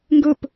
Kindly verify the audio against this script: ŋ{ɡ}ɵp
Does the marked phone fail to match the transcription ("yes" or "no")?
no